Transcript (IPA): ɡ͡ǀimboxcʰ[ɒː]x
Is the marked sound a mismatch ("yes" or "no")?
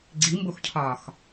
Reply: no